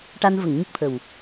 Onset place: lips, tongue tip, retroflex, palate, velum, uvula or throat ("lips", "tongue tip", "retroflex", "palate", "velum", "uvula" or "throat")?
retroflex